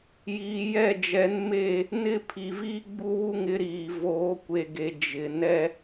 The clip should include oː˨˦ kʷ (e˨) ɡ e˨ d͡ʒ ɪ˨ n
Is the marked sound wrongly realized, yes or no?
no